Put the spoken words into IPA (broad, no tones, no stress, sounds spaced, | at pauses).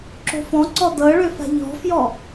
ǁ o̤ f ɔ̃ ǀ ɔ d ɤ ɭ ø f a̤ ʎ ɔ̤ f j ɔ